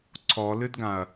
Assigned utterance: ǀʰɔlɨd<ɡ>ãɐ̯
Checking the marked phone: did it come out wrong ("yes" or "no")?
no